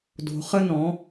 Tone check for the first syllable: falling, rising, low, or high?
low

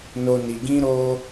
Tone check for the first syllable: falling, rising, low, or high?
low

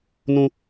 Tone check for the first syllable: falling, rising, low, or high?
high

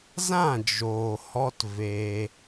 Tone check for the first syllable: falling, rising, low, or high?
falling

